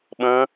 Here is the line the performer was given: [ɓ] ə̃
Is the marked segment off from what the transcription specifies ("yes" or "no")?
no